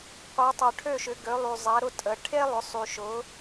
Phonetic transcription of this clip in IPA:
qʷ e˨˦ tˤ œ˨ ʈʰ ø˥˧ ʃ ʏ˨˦ ɡ ø˨˦ lˠ y˨ zˤ ɛ˨˦ ɾ ʊ˥˧ tʼ ə˨ ʈʰ e˥ lˠ ʏ˨˦ sˤ y˨ ʃ ʊ˨˦

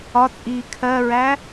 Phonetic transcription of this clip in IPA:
ɒ t͡sʼ iː kʰ ɜ ɹ æ

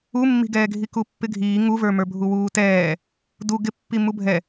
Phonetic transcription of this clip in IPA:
u mː i̤ ɡ ɛː ɡʱ i k u pː ɪ ɡʱ iː ŋ u v ə˞ m ə˞ bʱ u w uː t ɛː | d u ɡ ɪ pː i m u bʱ ɛ

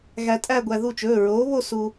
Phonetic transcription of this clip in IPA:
ɣ æ˧ tʼ æ˥˧ ɡʷ æ˧ ð u˥˩ t͡ʃ ɵː˩˧˩ ɹ oː˨˥ β o˥˧ s u˧

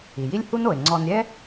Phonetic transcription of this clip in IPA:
i˩ j i˥ lʲ h u˥ n o˩ e̯ ŋ͡ǀ ɔ˨ n ɾʲ ɛ˥

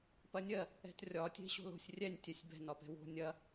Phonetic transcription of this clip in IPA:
p ɐ nʲ ɜ | ɛ̤ t rʲ ɒ tʲ e̤ ɕ o̤ l o̤ sʲ rʲ ɛ nʲ tʲ ɛ sʲ b ɛ̤ n ɒ p ɛ̤ w o̤ nʲ ɐ

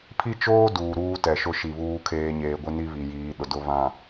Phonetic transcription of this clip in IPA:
pʰ i˦ t͡ʃ oː˦ d uː˨ ɾ uː˦ t ɛ˨ ʃ ʊ˦ ʃ i˨ β uː˦ kʰ eː˦ ɲ eː˨ ɡʷ ɪ˦ n i˦ β i˨ j iː˨˦ ɗ ʊ˨ d ʊ˦˨ β ã˨

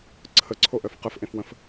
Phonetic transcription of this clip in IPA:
ǀʰ ə ǀʰ o ʔ œ f q ə f ʔ ẽ f w ə̃ f

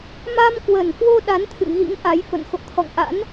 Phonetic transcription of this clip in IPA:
m a˧ m k w ə˨˩ n k w o˧ ɗ a˨˦ n t̪ʰ ɨ̰˧˨ ɣ ḭ˧˥ ŋ ʔ a˨˦ j f ə̰˧˨ n x o̰˧˨ t̪ʰ ɔ̰˧˨ ŋ ʔ a̰˧˥ n

